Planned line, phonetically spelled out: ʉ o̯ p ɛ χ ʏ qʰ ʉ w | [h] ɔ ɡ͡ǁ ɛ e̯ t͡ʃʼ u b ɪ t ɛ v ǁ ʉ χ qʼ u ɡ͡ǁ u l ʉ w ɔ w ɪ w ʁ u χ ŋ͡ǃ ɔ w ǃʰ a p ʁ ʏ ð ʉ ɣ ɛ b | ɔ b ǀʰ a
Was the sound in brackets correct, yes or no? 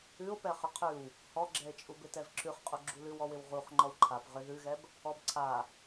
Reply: yes